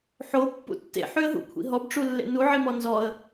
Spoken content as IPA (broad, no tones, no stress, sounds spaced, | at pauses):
ħ o pː ṵ tː ḛ ħ y ə̯ ɦ ṵ kʷʰ ḭ ɦ ɔ b ʈ͡ʂ u lː ḛ n u ʕ i m ɔ n z ɔ ə̯